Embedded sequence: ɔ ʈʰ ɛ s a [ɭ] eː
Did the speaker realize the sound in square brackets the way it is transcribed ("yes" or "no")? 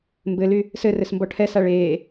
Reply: yes